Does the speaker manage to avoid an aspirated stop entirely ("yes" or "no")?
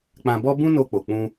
yes